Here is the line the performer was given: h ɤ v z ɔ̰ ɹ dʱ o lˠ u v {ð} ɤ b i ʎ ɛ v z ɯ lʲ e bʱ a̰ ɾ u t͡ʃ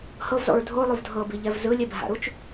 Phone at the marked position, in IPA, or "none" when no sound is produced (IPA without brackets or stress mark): dʱ